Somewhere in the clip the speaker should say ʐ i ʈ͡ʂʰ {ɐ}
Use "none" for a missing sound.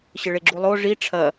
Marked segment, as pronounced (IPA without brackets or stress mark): ɐ